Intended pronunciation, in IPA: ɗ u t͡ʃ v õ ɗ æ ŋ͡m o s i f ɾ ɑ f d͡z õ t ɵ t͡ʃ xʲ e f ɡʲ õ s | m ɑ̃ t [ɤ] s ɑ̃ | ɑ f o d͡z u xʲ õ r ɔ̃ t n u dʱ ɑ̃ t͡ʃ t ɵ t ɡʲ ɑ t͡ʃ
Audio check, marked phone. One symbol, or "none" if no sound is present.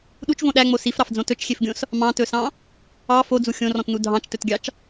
ɵ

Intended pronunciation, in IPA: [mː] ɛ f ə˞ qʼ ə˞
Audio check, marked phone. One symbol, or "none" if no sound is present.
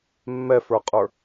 mː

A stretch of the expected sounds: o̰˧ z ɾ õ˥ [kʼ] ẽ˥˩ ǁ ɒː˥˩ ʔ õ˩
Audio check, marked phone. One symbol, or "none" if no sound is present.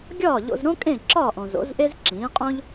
kʼ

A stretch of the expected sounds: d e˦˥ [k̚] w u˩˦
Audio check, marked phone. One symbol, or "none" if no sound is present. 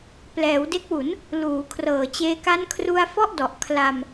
k̚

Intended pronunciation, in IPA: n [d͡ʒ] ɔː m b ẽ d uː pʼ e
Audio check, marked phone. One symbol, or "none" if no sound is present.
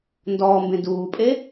d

